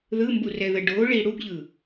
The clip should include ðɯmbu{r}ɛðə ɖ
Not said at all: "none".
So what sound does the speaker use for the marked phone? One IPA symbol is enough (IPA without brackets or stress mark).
r